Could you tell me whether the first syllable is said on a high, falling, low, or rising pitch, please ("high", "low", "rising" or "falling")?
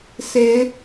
rising